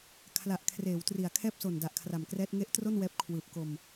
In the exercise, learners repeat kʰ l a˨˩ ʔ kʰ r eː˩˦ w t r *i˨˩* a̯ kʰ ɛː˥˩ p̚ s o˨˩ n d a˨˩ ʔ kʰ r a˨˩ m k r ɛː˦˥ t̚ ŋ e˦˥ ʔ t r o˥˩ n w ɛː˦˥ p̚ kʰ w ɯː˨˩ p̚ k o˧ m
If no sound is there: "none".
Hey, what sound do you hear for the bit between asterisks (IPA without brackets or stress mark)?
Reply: i˨˩